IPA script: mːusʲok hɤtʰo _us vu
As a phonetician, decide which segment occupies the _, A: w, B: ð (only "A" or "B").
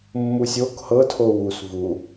A